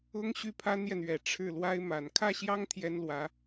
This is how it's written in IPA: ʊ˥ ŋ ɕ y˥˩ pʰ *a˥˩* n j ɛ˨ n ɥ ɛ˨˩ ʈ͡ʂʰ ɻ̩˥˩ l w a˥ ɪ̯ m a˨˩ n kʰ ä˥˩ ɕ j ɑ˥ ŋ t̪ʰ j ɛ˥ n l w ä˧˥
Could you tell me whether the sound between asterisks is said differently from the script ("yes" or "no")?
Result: yes